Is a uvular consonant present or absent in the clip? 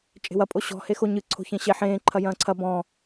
absent